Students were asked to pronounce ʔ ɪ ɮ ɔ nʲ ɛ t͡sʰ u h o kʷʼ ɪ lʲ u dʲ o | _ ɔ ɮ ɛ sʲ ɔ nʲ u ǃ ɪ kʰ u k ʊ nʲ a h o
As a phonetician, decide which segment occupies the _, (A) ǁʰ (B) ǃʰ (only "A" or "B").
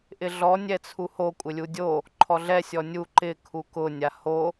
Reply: B